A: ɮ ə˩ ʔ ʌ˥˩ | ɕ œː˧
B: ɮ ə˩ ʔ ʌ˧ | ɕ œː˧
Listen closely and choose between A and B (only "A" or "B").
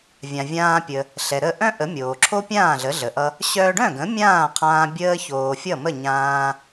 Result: B